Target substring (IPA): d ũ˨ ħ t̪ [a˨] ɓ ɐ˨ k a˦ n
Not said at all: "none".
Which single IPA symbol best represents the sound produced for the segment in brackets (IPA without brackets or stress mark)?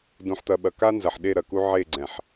ɐ˨